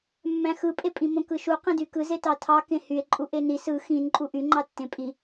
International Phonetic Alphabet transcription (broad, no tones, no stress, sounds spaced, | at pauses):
mː æ̃ x ɯ pʼ e pʼ ĩ m õ k ɯ ʃ u q ĩ d y k ɯ z e t ɑ tʰ ɑ k ẽ h y e̯ ǃʼ u ʔ e n i s ɯ x ĩ n ǃʼ u ʔ y ŋ͡ǃ ɑ tː ẽ pʼ i